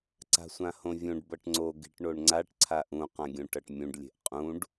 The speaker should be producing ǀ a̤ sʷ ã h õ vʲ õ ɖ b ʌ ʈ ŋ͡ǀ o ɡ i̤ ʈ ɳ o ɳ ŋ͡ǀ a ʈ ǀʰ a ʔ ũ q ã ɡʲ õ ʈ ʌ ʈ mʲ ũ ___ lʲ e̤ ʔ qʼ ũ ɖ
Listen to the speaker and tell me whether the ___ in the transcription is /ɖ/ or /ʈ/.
ɖ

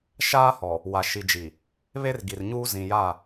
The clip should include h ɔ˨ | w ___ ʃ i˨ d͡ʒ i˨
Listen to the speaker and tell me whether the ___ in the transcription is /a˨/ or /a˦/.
a˨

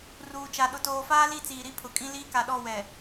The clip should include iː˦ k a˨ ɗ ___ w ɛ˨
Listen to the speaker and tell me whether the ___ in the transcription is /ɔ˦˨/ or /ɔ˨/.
ɔ˦˨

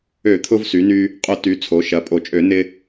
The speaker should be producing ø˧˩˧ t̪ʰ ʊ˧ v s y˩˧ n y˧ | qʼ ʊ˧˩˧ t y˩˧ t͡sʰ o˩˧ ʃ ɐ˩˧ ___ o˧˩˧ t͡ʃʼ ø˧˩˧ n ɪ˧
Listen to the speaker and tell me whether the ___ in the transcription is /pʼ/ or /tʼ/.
pʼ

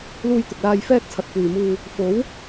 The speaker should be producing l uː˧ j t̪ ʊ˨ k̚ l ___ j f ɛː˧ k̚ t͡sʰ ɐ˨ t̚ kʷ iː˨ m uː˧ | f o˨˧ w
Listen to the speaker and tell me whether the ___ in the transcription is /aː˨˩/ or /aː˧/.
aː˧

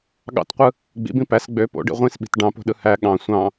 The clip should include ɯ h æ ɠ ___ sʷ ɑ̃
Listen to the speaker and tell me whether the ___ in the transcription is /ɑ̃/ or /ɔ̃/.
ɑ̃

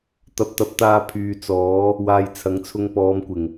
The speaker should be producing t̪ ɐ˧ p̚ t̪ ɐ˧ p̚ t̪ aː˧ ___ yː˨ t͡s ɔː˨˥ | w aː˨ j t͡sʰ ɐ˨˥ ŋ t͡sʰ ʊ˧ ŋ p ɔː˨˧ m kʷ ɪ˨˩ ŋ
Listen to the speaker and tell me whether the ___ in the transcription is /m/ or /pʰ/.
pʰ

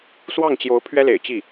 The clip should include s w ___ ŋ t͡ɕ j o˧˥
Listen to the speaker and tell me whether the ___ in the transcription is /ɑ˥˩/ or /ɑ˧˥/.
ɑ˥˩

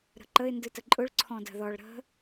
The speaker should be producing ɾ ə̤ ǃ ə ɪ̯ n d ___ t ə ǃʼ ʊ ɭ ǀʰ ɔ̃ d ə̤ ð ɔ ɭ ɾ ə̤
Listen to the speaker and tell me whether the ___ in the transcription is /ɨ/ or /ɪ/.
ɨ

